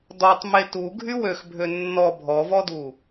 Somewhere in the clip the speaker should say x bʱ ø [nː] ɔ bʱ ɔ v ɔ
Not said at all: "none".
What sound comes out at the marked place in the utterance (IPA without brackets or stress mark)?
nː